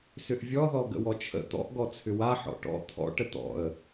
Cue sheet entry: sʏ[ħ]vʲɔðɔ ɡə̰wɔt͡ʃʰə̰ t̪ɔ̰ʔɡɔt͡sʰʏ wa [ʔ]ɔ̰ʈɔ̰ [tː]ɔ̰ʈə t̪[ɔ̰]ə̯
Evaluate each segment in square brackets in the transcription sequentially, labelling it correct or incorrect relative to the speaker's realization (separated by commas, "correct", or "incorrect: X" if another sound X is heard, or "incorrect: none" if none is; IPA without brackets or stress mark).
incorrect: ʔ, incorrect: ħ, incorrect: t̪ʰ, correct